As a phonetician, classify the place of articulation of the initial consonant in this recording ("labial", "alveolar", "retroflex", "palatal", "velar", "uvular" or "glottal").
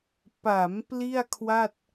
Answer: labial